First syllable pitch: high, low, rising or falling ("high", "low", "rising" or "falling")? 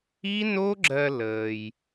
high